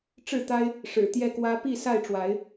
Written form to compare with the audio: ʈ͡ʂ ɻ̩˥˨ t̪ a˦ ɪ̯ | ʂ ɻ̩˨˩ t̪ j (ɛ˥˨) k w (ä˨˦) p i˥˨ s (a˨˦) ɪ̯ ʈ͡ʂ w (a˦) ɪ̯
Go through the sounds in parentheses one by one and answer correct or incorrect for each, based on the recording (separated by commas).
correct, incorrect, incorrect, incorrect